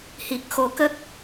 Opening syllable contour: low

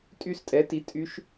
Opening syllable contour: falling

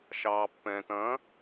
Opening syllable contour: low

